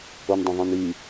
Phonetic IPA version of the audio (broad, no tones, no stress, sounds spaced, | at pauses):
o n dˤ ə̃ ðˤ ĩ n i